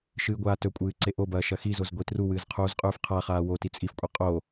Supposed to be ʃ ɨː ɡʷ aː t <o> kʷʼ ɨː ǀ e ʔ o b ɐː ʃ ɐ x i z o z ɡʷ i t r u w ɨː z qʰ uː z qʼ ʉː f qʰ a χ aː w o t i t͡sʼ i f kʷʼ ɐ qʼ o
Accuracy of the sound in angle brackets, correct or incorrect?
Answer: incorrect